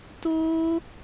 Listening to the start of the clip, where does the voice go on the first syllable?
high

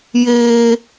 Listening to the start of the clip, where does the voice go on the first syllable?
high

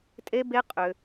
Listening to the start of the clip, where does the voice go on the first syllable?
high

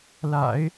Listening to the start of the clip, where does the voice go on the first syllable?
low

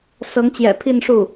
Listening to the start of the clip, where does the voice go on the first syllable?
rising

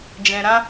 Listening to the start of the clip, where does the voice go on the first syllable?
low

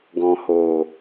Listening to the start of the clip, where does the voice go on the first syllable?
low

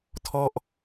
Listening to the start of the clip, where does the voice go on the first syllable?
falling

